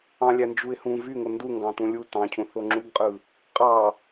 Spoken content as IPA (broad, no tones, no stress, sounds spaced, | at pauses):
ɑ̃ lʲ æ n d͡ʒ u ɪ̯ h ũ v y ŋ o n d u ŋ ɡ ɑ̃ t ũ lʲ u t ɑ̃ cʰ ũ θ o ŋ͡ǁ u ɡ qʼ ɯ | qʼ ɑ